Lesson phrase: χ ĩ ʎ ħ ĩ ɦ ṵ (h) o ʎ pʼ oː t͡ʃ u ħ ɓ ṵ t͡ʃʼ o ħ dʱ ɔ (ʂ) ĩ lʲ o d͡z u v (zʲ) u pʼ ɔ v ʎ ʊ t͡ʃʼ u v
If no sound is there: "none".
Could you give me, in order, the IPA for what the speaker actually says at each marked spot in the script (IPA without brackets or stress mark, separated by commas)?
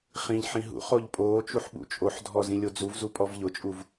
χ, z, z